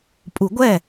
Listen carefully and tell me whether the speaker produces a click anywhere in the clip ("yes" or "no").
no